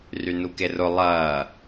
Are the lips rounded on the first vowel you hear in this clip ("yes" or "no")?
yes